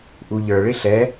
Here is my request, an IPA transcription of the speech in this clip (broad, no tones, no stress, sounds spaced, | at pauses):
ʔ u ʎ ə˞ ɭ ɪ ɬ ɛ